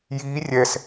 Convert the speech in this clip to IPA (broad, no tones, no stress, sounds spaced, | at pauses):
j iː rʲ ɛ s